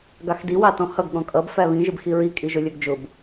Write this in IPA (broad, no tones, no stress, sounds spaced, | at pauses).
ɡ ɑ x d i w ɑ t ɔ̃ h ʌ ɡ ɠ ɔ̃ kʼ ʌ b f æ β ĩ ʒ ɪ b x i ɹ i kʼ i ʒ ʊ lʲ ə˞ ɡ d͡ʒ ʊ b